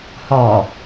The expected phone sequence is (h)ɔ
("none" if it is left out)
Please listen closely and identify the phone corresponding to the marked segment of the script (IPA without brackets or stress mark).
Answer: h